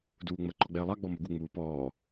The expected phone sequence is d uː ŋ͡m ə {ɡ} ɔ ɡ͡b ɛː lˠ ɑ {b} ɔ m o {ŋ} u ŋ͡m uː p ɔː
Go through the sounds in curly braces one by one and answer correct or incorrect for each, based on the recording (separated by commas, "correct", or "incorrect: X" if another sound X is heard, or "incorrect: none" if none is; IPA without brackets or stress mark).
incorrect: ǃ, incorrect: ɡ͡b, incorrect: ɡ